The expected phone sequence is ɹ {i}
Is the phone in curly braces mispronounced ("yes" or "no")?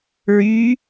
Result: yes